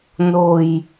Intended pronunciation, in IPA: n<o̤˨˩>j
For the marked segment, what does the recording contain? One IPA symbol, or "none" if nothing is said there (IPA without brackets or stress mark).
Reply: o̤˨˩